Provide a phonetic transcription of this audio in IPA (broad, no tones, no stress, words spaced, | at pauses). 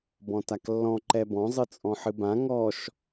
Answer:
bɔ̃taklːɔ̃ ǃɛbɔ̃ zˤɨt͡sʼɔ̃ħɨbã ŋɔʃ